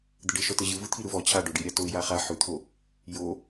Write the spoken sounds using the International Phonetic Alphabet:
d̪əɖɘ ʃɔtəʑɯ vɯt̪ʰiɾɯvɔ t͡ɕʰaɖoɖiɾʲa toɪ̯jaχa ħʉt̪ʰo | jo

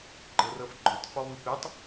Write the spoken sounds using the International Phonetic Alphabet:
ɡ͡ǃɤrɤfɡ͡ǃotˤ fɔβɯpetˤ

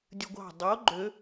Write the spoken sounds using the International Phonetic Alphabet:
dʲɯɡʷɑ̤ dˤo ɡ͡ǃø

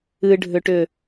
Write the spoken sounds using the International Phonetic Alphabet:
ɨɖʱʏʈʏ

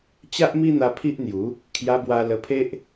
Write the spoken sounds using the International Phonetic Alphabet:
t͡ɕa˦ʔmi˦n̪a˧ pʰi˦ʔn̪ju˨˦ | kʰja˧bwa˧ lə˧pʰe˦ʔ

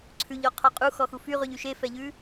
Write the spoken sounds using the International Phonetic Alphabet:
ǀʰʉʎɔqʰɔ qʼu xɔxufyʁʉʎ yʃefɛʎʉ

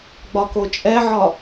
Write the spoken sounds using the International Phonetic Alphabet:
ɡ͡bɒkot͡ʃʼɛʕɒ

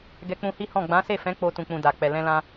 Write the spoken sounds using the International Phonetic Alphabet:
ɡɛ˧k͡pũ˧hi˦hɔ̃˦˨ ɡ͡bã˨˦se˦˨fɛ̃˨˦ k͡po˧ tũ˨k͡pũ˨ da˨k͡pɛ˨ lɛ̃˧lã˧

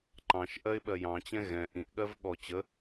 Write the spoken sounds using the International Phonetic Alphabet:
ǃɑ̃ʃ ʔɜɪ̯ɓɜjɑ̃t͡ɕɛ̃ ɣɛ̃ ʔĩʔɠɜv ɠɔ t͡ɕə

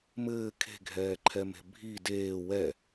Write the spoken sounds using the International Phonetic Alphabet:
mɘː kʰe̤ɡʱɛːǃʰɛme̤ bʱi deː wɛ

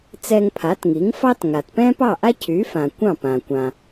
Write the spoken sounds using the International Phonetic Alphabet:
t͡sɛ˧ŋpʰa˩˥tŋi˩˥ŋ fɑ˥t ŋa˩tpɛ̃ː˥pɑ˥˩ʔa˥ cʰyː˩˥fã˩ kʷɑ̃˥˩ pã˩kʷã˩

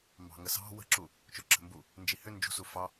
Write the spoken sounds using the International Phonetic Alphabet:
mbɑ̤ŋəsɑ̤ wə̤ǁu | t͡ʃoǁə̤mbu | nd͡ʒihʏ nd͡ʒṳsu fɑ

